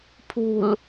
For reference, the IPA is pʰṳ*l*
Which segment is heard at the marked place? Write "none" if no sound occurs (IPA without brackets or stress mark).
l